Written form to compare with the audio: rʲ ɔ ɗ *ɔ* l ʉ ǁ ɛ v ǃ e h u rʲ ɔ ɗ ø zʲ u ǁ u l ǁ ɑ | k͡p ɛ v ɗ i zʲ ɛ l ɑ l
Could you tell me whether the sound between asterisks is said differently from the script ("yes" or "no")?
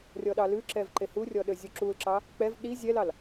yes